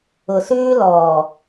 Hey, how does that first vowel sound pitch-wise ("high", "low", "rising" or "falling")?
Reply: low